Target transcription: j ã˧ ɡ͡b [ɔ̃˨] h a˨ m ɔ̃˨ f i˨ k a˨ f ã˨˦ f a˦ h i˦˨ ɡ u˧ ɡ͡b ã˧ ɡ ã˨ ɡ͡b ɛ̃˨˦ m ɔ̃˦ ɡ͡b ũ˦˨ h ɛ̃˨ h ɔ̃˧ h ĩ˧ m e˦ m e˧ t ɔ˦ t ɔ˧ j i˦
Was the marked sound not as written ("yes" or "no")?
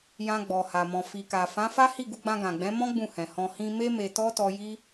yes